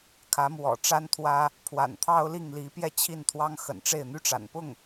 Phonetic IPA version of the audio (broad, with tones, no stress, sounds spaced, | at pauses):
kʰ ä˧˥ m w ɔ̰˨˩ ʈ͡ʂ a˥ n t̪ʰ w ä˥ | pʰ w a̰˨˩ n t̪ʰ ɑ˥ ʊ̯ l i˥˩ ŋ l i˧˥ p j ɛ˥ t͡ɕʰ i˥˩ n t̪ʰ w ɑ˥ ŋ x ə̰˨˩ n ʈ͡ʂ e˥˩ ɪ̯ n̪ y˥ ʈ͡ʂ a̰˨˩ n p ʊ˥˩ ŋ